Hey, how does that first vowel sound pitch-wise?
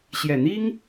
low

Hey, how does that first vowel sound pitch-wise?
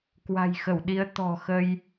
low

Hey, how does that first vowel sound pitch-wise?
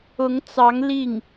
rising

